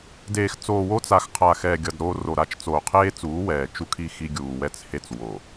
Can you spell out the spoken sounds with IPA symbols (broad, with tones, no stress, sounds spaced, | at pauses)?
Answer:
d eː˨ x t͡s oː˨ w o˦ t͡s a˨ x qʰ a˨ x ɛː˨ ɡʲ ʌ˨ d ɾ oː˦ r o˨ ɾ a˦ t͡ʃ t͡s oː˨ qʰ eː˦ t͡s uː˨˦ w ɛː˨ t͡ʃ u˦ kʰ i˦ x i˦ ɡʲ uː˨ w ɛ˨ t͡s h e˨ t͡s w o˨